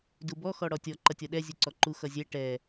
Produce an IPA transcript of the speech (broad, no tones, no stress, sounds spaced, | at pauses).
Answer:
d u b ɔ x ɔ ɽ ɔ tʲ ɔ ǃ ʌ tʲ ɔ ɗ ɛ zʲ u ǀ ɔ ǃ u x ʌ zʲ ɛ ʈ ɛ